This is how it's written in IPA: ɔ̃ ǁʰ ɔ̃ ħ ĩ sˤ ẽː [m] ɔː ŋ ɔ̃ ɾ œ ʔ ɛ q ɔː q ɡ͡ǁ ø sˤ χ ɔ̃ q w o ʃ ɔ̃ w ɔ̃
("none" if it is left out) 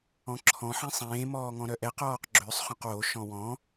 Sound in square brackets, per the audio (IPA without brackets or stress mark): m